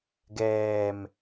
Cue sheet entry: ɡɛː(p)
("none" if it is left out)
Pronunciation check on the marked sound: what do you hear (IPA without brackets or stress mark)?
m